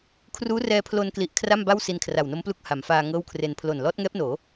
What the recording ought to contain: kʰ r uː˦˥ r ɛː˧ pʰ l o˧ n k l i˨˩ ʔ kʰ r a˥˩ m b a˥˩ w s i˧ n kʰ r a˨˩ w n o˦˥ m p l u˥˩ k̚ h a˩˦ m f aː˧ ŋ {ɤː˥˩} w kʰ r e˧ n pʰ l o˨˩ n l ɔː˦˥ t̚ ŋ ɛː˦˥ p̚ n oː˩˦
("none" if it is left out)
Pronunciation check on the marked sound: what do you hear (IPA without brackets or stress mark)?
ɤː˥˩